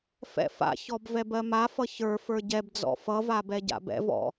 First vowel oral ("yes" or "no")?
yes